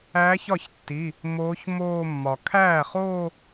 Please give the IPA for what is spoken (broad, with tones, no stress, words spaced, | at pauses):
æ˧˥çɒ˥˩çtːi˩˧˩ | moː˧˥çmoː˥˧ mːɒ˩ kʰæː˥˩χoː˥˧